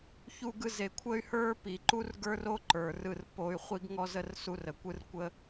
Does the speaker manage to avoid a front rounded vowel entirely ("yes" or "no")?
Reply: no